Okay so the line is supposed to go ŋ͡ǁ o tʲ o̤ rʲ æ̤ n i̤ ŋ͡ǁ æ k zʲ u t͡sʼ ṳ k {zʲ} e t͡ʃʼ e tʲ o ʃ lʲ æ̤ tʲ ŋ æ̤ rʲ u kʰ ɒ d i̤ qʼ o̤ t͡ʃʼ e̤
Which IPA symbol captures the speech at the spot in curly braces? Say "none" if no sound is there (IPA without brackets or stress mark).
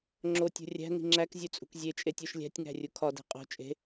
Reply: zʲ